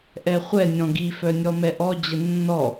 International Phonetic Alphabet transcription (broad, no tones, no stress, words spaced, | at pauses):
ʔɛχʷɛ nʲɔ̃ɡi fœnʲɔmɛʔɔ d͡ʑənːɔ